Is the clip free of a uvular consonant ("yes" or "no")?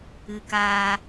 yes